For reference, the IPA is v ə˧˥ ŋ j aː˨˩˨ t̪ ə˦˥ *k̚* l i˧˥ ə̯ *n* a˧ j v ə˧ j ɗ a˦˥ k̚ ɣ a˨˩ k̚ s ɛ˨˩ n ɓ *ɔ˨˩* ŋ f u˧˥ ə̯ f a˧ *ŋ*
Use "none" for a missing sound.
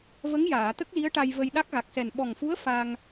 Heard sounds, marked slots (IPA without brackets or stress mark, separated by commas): k̚, ʈ, ɔ˨˩, ŋ